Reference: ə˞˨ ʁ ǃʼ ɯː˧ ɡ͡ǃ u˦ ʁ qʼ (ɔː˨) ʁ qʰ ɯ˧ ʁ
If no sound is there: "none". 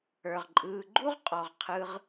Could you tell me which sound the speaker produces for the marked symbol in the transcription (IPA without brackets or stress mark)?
ɔ˨